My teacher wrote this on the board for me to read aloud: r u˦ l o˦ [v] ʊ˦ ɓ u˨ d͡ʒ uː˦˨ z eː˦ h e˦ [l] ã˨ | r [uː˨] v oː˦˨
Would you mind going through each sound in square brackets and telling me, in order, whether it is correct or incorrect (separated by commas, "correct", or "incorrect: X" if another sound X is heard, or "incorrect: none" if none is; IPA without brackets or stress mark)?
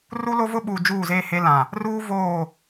correct, correct, incorrect: uː˦